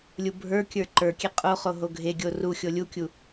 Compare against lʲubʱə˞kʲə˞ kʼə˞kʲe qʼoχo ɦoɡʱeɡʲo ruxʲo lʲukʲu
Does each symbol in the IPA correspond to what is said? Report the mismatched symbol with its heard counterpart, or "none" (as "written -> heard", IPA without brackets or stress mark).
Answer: kʼ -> ǃ